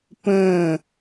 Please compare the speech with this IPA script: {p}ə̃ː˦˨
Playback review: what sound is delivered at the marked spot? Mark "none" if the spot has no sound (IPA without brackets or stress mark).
p